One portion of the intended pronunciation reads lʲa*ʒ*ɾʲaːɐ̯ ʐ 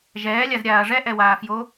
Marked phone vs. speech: incorrect: z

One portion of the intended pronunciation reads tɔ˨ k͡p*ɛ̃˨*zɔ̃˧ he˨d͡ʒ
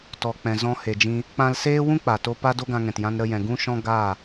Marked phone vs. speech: correct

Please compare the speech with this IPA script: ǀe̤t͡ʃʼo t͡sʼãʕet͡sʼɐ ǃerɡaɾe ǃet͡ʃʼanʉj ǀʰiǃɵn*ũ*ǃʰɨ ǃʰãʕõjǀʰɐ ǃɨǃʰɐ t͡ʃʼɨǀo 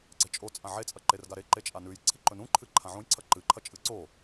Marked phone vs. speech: correct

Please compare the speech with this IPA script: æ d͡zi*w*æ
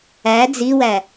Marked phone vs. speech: correct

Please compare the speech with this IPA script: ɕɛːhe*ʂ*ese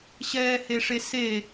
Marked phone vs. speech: correct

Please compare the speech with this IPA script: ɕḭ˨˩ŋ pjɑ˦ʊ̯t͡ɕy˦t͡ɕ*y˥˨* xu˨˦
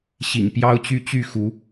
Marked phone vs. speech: correct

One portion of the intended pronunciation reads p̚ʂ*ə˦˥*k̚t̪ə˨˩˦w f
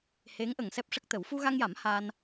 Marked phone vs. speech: correct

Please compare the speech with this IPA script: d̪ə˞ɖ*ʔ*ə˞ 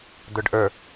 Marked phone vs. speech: correct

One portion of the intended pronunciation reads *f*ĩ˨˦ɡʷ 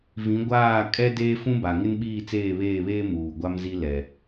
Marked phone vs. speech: incorrect: v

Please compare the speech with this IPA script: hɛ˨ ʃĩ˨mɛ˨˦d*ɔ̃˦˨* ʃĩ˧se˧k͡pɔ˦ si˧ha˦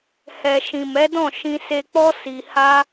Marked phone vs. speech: correct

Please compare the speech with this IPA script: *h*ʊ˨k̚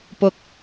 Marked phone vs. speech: incorrect: p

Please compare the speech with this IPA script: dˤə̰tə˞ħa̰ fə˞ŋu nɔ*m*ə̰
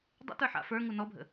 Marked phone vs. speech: incorrect: bʱ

